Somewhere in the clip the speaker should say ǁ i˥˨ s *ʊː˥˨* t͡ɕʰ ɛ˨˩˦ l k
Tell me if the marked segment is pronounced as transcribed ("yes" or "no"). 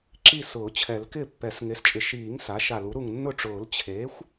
no